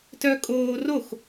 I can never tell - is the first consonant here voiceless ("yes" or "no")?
yes